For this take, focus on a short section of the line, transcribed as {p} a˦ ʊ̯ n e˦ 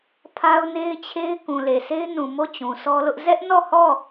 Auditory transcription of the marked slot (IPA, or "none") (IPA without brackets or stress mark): pʰ